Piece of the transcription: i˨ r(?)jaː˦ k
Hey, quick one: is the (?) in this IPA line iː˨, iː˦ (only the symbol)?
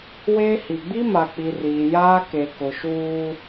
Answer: iː˨